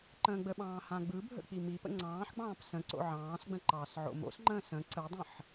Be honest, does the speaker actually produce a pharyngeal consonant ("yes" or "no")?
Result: yes